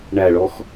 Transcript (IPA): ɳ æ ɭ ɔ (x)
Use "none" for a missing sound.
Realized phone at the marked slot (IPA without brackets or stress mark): x